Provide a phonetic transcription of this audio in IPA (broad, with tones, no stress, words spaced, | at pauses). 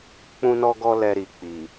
k͡pũ˧nɔ˧ɡɔ˧ lɛ˧ɾi˨k͡pi˨